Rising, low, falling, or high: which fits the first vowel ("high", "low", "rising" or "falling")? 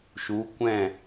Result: rising